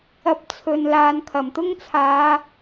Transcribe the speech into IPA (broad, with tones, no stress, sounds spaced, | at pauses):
ɐ˧ p̚ t͡sʰ ɵ˨ n l aː˨ n kʰ ɐ˨˩ m t̪ ʊ˥ ŋ t͡sʰ aː˨˧